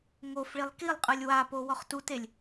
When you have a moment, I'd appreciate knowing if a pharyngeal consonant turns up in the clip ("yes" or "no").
no